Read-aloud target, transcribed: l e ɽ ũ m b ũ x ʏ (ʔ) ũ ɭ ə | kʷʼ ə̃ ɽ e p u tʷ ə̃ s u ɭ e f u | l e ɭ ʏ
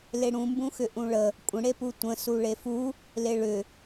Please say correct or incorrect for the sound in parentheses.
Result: correct